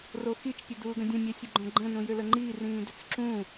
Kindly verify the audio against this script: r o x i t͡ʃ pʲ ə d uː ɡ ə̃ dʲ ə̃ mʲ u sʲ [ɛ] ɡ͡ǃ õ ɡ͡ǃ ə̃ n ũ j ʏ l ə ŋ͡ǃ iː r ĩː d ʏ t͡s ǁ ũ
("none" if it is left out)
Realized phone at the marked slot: ə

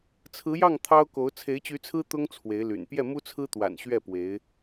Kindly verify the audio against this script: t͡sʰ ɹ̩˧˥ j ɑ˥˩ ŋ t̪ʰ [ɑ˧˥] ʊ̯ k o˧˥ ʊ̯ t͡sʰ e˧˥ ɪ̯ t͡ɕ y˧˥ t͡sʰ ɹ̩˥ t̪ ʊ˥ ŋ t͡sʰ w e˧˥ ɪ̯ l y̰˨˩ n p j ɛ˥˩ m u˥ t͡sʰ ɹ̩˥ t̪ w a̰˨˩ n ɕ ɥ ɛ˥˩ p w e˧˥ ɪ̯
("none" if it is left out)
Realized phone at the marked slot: ɑ˥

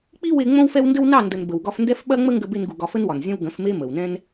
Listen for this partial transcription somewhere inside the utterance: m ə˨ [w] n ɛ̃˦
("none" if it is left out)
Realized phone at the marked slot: w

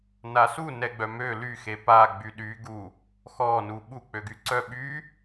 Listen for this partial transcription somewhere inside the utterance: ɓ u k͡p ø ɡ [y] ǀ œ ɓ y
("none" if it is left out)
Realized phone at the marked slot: y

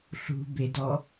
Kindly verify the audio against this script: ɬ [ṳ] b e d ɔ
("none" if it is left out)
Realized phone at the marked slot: ṳ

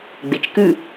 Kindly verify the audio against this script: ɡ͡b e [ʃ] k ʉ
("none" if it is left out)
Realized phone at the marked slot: t͡ʃ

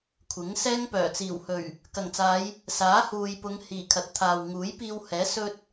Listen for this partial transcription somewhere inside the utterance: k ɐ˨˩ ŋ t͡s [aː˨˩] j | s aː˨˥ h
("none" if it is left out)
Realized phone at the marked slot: aː˨˧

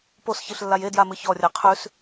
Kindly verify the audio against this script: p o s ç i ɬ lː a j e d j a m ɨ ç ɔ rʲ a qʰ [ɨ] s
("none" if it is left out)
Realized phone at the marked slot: ʉ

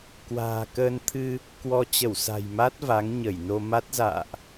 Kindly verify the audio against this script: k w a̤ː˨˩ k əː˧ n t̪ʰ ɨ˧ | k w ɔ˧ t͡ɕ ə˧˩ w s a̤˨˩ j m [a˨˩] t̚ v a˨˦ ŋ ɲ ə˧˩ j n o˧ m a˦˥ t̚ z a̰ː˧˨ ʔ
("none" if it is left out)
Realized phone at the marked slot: a˦˥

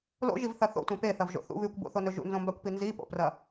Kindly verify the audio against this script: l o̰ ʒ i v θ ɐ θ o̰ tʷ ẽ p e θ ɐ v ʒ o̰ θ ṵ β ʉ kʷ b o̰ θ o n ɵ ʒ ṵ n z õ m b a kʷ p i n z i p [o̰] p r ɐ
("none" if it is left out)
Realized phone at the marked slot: o̰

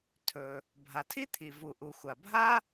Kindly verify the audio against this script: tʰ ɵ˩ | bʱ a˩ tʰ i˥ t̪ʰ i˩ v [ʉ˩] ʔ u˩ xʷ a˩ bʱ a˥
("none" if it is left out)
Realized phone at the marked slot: u˩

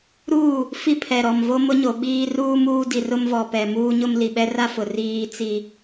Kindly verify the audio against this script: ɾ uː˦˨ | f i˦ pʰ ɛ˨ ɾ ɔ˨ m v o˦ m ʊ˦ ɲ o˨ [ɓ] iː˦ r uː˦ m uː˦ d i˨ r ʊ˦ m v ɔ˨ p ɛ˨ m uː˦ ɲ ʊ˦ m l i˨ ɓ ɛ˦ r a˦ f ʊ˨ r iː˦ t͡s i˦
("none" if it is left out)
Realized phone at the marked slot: ɓ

